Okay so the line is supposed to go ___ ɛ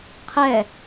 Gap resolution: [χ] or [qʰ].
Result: qʰ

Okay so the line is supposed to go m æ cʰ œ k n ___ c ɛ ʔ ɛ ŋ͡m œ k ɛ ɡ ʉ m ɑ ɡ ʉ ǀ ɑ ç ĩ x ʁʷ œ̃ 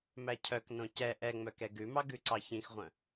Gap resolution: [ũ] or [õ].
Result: õ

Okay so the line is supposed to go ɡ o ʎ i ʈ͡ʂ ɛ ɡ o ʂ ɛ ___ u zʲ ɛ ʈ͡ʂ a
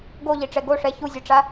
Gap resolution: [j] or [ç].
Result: ç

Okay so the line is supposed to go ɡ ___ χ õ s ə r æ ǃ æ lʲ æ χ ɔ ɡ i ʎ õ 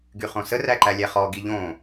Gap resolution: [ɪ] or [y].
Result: y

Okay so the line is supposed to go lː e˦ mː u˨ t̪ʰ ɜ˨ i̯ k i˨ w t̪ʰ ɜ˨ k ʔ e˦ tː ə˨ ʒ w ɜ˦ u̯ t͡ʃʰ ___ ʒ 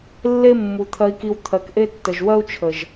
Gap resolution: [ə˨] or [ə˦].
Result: ə˨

